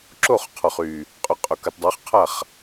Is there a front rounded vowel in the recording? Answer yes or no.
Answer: yes